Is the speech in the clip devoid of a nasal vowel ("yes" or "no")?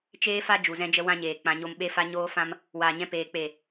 no